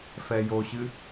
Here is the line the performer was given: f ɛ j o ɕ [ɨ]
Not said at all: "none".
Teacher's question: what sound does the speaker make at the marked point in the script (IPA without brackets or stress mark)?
ɨ